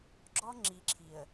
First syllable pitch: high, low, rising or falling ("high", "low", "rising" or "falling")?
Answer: high